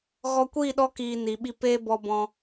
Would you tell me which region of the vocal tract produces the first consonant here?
velum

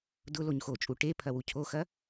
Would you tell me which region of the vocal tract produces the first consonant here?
tongue tip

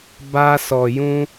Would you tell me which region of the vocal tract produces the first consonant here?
lips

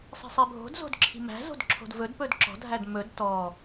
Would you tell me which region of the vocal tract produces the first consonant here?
tongue tip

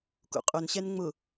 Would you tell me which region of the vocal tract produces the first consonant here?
velum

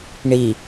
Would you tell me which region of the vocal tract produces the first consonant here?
retroflex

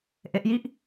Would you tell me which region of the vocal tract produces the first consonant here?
throat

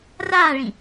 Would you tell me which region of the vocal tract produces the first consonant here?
tongue tip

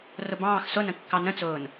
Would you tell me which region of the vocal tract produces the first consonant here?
tongue tip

